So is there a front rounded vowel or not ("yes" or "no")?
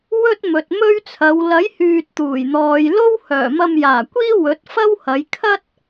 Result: yes